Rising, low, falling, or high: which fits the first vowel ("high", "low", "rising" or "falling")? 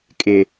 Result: low